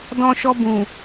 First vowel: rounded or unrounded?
rounded